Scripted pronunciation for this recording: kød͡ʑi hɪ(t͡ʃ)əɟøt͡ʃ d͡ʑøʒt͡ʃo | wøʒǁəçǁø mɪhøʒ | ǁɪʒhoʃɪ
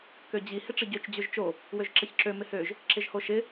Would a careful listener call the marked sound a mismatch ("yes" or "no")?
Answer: yes